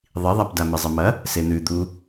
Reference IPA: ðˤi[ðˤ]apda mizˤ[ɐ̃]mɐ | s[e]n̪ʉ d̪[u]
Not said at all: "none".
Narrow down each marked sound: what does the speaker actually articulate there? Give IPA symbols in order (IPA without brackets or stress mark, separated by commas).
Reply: ðˤ, ɐ, e, u